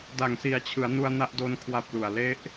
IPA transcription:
d a˨˩ ŋ s i˨˩ a̯ t͡ɕʰ ɯ˩˦ a̯ n u˧ a̯ n a˦˥ ʔ d o˦˥ n kʰ w a˦˥ p̚ l u˨˩ a̯ l e˦˥ ʔ

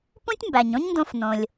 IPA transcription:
p ũ˥ tʲ m b æ˩ ɲ õ˥ ɲ n d õ˧ f n õ˩ lʲ

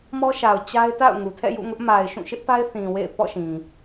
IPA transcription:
m ɔ˦ ʃ a˨ ʊ̯ t͡ɕ a˦ ɪ̯ t a̰˦˨ ʊ̯ ŋ u˨ tʰ ɛ̰˦˨ j ṵ˦˨ ŋ ʊ˦ ʔ m a˨ ɪ̯ ʃ ũ˦˨ ʃ ɪ˦ ʔ p a˦ ɪ̯ θ ĩ˨ w ḛ˦˨ ɪ̯ p ɔ̰˦˨ ʃ ĩ˨

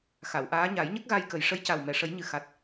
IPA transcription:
x a˨˩˨ w ʔ aː˧˥ ɲ a˨˩˦ j ɲ ə˦˥ k̚ ɣ a˧ j k ə˨˩ j ʂ ə˧˥ j c a˨˩ w m ɛ˨˩˨ ʂ ə˨˩˦ j ɲ ɨ˨˩ x a˨˩ t̚

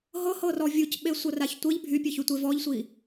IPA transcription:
ɦ ɤ h ɤ r ɔ vʲ u c ɓ e sʷ ɤ r a ç tʷ ɘ ʎ bʱ y pʲ ɘ ç y tʷ e v ɔ ʎ sʷ iː

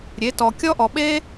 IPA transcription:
ɾʲ e˩˥ t ɔ˨ kʲ ɔ˦ ʔ ɔ˨ ɓ eː˦

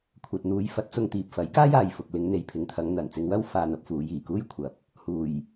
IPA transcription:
kʷʰ ɐ˨ t̚ n̪ uː˨˧ j f ɐ˨˥ t̚ t͡s ʊ˧ ŋ t̪ iː˨ p̚ f ɐ˨˥ j k aː˥ j aː˨ j f ʊ˨ k̚ l ɪ˨˧ ŋ n̪ e˨ j pʰ ɪ˨˧ ŋ t̪ʰ ɐ˨˧ ŋ n̪ ɐ˨˩ n t͡s ɪ˧ ŋ w ɐ˥ w f aː˧ n̪ ɐ˨˥ p̚ f uː˨˧ j iː˨˩ k uː˥ j kʷʰ ɐ˨˥ p̚ | h uː˨˩ j

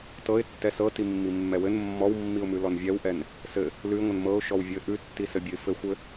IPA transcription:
t ɤ ɪ̯ tː ɛ s ɤ t i mː i mː ɛ w ɘ n mː ɔ w mː i ʊ̯ m ʉ l ɔ n vʲ ɛ w ʔ ɛ n | s ɘ | l ʉ ɪ̯ ŋʷ ɘ n m ɤ ʊ̯ ʃ ɔ w vʲ ɘ ʔ ʉ tː i s ɘ bʲ ɘ ɪ̯ f ɘ xʷ ɘ

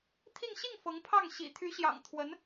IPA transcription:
t̪ʰ i˥˧ ŋ ɕ i˥˩ ŋ f ɤ˧˥ ŋ pʰ ɑ˥˩ ŋ ɕ ḭ˨˩ t̪ʰ y˧˥ ɕ j ɑ̰˨˩ ŋ t̪ʰ w ə˧˥ n

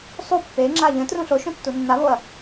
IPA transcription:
sˤ u pː e ŋ͡ǁ a ʎ ə̃ t r ũ ɬ o ʃ õ tː u nː a β o ɐ̯

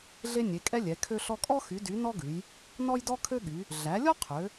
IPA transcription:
ɮ e˦ nʲ e˩˧ kʼ ɛ˦ lʲ ɛ˩˧ kʰ ø˦ ɬ ɔ˦ kʼ ɔ˦ x y˩˧ d y˩˧ n ɔ˦ ɡ ʉ˩˧ j | n ɔ˦ j d ɔ˦ kʰ ø˦ ɠ y˩˧ | ɮ æ˩˧ lʲ ɔ˦ qʰ ø˩˧

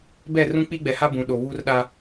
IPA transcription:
b ɛ˦˨ r ũ˦ k͡p i˦ ɡ͡b ɛ˨ h a˦ b ũ˨ ɗ o˨ β u˦ r ɗ a˦

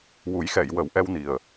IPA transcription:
w u˨˩˦ j x ɛ˨˩˨ j w ə˨˩˦ w ʔ ɛ˧ w n i˨˩ ə̯

